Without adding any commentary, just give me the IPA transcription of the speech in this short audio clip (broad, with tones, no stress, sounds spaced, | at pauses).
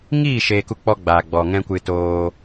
ŋ iː˦˨ ʃ eː˧ k u˦ k͡p ɔ˦ ɡ͡b aː˨ ɡ͡b ɔ˨ ŋ ɛ̃˦ kʷ ɨ˧ t oː˧